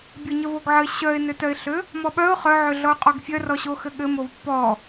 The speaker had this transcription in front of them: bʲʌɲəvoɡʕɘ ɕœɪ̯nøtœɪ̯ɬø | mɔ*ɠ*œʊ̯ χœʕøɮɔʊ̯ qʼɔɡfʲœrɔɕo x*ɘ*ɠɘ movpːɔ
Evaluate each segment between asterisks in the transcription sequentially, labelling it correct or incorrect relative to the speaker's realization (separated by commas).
incorrect, correct